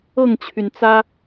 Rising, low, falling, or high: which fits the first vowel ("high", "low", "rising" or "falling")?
falling